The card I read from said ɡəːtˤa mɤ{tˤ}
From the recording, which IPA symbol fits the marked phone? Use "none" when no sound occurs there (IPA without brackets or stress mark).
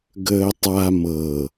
none